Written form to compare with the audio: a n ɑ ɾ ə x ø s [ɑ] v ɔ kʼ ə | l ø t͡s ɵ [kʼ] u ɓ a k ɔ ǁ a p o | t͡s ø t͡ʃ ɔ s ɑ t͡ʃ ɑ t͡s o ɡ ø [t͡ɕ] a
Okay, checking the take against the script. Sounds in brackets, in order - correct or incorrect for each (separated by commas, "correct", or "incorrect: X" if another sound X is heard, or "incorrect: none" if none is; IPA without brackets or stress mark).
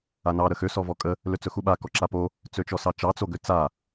incorrect: ɔ, incorrect: x, incorrect: t͡s